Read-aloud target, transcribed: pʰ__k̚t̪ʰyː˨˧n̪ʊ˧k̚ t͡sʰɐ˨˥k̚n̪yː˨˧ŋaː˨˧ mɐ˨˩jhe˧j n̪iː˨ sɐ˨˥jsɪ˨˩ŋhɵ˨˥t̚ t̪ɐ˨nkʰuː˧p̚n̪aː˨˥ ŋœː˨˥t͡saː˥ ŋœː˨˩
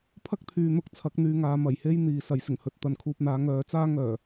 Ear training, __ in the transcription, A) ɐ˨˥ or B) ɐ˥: B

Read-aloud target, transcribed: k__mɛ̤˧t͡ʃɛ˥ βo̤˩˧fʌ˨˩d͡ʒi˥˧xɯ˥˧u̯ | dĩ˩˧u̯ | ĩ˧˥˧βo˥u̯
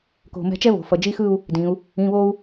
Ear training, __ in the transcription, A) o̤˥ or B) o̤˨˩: B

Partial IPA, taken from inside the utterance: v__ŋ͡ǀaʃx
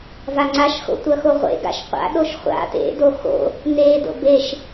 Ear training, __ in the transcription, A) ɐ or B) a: B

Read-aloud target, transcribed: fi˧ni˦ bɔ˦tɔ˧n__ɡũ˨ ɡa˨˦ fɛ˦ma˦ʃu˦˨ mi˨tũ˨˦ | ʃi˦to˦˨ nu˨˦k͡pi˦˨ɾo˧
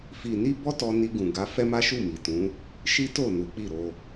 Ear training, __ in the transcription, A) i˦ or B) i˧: B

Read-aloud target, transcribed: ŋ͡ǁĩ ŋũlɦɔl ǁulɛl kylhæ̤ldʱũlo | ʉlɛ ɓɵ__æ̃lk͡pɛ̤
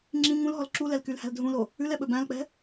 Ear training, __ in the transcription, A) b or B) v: A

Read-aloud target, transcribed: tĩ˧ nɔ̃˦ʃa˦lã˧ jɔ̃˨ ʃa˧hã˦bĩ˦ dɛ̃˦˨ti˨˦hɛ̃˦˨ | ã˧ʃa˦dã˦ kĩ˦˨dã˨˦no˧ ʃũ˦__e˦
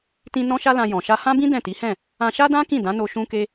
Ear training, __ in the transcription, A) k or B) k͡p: A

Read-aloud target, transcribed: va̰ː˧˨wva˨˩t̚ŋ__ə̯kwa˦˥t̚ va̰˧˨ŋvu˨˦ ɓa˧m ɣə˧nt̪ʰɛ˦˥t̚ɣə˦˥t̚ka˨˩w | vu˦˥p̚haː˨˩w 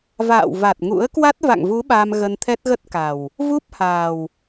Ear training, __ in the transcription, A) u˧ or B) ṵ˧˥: B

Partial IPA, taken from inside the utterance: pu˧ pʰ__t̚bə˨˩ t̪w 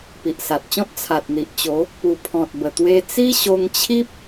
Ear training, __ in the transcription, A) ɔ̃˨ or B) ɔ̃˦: A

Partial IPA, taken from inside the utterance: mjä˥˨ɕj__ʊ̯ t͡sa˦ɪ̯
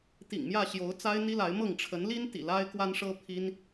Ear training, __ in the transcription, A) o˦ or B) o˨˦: B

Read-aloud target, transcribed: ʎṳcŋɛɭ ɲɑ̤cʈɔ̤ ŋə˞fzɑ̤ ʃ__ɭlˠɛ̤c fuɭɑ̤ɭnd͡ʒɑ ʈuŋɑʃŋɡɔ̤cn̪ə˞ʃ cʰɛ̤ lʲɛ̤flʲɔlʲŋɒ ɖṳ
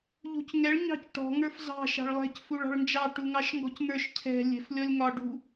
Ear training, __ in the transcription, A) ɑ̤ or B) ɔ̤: A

